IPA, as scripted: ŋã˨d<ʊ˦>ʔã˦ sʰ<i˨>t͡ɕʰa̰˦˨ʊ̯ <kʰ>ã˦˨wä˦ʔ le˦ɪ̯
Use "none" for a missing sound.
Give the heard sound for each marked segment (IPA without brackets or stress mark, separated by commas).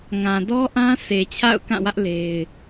ɔ˦, e˨, k